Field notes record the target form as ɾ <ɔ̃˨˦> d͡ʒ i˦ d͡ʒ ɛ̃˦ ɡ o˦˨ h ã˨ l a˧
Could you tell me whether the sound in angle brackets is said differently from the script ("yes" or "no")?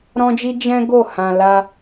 yes